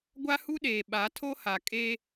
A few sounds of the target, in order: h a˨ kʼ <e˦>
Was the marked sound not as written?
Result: no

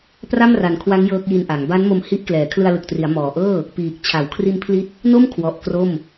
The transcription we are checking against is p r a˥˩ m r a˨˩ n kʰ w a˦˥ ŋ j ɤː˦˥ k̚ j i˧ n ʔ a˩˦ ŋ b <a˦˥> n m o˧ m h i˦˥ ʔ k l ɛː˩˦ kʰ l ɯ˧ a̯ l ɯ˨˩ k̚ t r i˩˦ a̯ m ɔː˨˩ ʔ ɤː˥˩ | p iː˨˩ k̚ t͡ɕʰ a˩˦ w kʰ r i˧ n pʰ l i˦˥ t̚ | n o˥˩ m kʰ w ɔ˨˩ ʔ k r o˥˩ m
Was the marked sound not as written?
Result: no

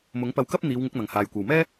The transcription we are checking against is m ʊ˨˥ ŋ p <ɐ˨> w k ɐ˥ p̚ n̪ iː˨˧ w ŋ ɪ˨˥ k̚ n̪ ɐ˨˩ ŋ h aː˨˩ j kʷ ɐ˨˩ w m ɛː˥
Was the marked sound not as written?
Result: yes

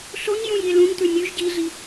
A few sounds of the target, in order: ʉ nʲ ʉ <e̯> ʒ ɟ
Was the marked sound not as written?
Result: yes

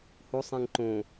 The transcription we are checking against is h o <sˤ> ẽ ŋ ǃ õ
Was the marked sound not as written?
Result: no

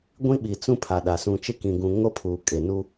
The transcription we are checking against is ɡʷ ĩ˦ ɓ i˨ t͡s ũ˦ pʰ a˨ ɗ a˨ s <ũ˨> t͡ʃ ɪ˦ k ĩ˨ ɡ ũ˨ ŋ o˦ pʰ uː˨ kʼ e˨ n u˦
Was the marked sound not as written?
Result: no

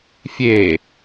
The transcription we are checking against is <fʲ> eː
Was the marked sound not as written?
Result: no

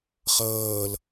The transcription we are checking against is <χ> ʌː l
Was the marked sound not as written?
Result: no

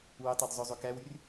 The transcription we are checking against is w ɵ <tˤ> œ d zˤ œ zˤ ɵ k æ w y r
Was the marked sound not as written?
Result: no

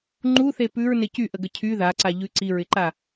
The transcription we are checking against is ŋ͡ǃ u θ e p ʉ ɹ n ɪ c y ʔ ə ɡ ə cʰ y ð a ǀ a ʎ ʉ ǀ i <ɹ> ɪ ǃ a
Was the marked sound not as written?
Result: no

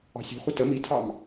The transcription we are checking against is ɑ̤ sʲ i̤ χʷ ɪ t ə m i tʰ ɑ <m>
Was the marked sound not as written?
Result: no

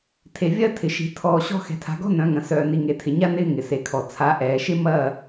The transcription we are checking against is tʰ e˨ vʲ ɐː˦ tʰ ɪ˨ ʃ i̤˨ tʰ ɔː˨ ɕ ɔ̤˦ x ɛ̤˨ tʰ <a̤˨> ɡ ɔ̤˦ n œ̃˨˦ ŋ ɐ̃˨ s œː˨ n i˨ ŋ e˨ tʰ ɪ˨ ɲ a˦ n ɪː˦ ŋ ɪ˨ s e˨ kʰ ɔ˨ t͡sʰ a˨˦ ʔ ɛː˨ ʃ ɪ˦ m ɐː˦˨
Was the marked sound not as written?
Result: no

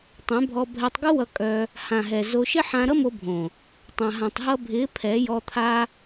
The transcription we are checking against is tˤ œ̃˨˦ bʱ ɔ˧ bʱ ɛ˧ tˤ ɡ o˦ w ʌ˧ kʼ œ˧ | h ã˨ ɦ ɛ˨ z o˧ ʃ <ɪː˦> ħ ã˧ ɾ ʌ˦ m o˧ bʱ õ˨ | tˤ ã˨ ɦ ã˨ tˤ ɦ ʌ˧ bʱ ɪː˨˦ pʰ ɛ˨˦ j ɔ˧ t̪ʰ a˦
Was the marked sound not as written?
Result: yes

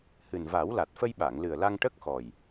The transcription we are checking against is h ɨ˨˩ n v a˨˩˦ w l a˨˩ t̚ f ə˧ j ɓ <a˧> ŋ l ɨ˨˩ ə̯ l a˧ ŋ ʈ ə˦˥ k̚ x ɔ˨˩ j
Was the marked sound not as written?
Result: yes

